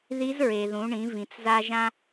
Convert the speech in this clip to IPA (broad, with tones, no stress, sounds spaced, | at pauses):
ð i˧˥ z ɹ e˩ ð ũ˩˧ ɳ ĩ˩˧ v ĩ˩ t͡s z a˧ ʒ ã˧